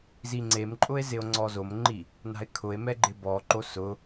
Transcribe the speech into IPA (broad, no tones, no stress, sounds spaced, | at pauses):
z i ŋ͡ǀ e m ǃʼ ʊ e̯ z ɪ o̯ ŋ͡ǀ ɔ z o m ŋ͡ǃ i | n a̤ e̯ kʰ ʊ e̯ m ɛ ɡ͡ǃ ɪ b ɔ ǃ o s ʊ